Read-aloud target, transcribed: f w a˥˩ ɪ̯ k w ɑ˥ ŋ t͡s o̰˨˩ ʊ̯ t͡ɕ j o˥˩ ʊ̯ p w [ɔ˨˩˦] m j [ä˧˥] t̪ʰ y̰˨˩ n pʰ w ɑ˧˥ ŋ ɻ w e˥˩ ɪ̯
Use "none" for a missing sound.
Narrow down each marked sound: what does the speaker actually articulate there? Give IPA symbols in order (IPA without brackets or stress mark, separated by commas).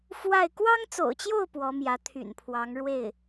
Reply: ɔ˧˥, ä˧˥